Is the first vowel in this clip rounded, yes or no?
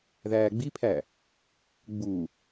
no